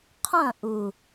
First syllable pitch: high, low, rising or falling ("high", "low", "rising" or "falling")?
falling